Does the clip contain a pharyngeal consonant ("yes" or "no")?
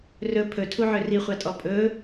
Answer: yes